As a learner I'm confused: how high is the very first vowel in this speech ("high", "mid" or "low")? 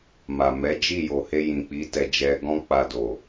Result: low